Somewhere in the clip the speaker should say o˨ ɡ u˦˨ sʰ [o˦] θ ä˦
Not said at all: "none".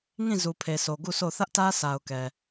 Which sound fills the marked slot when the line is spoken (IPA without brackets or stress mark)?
o˦˨